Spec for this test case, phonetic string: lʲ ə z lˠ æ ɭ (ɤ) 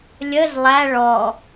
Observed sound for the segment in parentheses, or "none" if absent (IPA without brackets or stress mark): ɔ